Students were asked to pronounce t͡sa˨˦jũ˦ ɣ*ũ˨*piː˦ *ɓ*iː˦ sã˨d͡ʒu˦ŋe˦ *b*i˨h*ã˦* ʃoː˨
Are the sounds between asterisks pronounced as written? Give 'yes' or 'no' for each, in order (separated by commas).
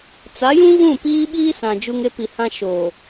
no, yes, no, yes